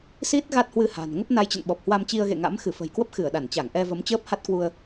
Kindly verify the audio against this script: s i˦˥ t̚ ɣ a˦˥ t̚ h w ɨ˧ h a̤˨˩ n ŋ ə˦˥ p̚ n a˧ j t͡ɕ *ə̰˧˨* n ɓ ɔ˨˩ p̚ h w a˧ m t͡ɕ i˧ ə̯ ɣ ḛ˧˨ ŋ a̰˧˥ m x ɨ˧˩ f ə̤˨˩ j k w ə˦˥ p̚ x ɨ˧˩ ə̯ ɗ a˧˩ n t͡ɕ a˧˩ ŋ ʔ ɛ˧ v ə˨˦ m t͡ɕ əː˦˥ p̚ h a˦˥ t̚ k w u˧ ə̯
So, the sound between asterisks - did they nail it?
yes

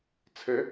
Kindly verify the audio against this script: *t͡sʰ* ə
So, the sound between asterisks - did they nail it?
yes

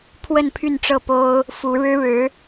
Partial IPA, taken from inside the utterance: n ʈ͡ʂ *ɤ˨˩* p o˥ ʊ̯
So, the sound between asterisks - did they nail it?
no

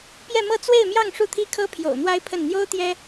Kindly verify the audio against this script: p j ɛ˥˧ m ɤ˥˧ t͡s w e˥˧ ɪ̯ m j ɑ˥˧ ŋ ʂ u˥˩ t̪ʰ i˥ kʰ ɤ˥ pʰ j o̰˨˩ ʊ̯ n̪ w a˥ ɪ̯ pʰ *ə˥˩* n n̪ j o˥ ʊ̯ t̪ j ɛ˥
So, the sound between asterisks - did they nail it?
yes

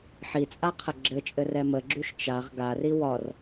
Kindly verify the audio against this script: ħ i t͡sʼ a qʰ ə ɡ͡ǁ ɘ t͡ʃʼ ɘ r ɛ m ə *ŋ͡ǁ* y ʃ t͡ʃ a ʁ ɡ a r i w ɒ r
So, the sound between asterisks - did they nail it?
no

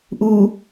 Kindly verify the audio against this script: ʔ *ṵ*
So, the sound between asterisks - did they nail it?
no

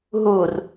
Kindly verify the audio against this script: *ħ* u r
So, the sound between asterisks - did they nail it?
no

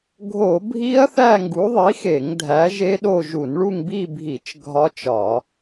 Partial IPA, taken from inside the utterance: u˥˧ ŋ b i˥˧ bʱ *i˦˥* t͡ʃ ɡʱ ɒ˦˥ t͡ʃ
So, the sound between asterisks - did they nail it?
no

